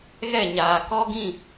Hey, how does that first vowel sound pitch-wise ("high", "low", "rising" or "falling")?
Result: falling